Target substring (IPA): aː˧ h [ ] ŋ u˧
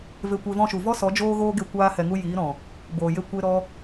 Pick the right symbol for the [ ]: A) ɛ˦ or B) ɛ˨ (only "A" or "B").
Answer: B